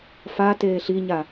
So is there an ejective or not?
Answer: no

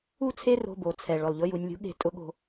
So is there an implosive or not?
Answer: yes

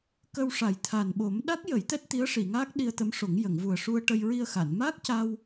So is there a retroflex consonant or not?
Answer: yes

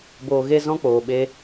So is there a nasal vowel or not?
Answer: yes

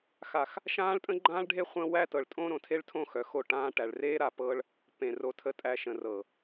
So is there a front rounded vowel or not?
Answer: yes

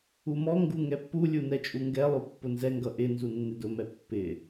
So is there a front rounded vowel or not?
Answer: no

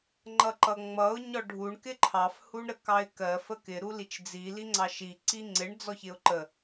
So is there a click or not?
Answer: yes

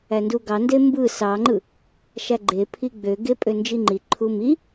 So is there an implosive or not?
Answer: no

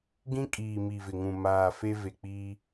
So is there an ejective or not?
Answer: yes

